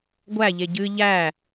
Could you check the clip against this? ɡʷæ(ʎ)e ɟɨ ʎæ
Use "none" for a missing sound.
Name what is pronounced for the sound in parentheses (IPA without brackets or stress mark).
ʎ